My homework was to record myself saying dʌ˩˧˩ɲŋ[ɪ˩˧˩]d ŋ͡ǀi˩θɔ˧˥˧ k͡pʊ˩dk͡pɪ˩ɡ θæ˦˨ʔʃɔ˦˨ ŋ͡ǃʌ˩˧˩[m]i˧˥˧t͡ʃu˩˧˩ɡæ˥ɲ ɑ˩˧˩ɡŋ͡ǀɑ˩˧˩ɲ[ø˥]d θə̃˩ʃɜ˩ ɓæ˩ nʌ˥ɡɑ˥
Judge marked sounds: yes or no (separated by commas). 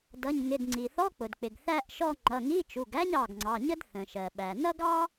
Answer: yes, no, no